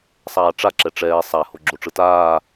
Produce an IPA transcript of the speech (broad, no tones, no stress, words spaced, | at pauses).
sˤaːʈ͡ʂa ǁɛʈ͡ʂɛː sˤa hoɡ͡ǁoʈ͡ʂɯtaː